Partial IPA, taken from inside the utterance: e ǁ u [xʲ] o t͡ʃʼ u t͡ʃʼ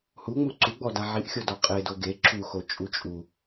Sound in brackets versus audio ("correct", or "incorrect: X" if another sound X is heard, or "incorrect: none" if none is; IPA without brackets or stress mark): incorrect: x